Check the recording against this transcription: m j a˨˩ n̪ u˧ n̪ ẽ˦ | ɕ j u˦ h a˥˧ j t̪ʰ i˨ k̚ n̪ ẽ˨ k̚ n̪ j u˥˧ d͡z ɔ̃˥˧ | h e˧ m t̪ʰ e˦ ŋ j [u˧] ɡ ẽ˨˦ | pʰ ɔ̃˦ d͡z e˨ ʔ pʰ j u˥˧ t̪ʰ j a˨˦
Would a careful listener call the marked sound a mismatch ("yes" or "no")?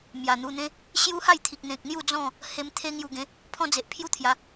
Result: no